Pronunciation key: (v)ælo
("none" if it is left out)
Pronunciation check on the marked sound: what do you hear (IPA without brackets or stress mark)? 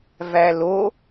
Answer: v